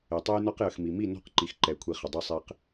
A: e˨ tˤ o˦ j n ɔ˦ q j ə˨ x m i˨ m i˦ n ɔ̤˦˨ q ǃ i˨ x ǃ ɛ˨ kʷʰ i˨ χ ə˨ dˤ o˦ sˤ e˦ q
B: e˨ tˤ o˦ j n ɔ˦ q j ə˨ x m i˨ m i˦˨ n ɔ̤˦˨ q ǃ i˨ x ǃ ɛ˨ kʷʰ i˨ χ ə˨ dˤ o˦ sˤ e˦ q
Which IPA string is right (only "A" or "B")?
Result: B